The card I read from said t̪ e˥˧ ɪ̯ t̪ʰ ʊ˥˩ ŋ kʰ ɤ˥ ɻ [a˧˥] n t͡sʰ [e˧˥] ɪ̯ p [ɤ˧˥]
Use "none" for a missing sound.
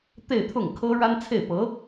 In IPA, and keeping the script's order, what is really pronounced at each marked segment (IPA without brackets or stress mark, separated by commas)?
a˥, e˥˩, ɤ˧˥